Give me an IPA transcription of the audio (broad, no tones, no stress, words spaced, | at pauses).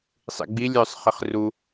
sˤḭɡ͡bi lʲœsˤ χiχru